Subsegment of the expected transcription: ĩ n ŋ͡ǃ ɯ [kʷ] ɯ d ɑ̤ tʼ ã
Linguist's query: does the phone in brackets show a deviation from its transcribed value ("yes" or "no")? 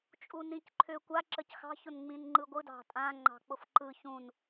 yes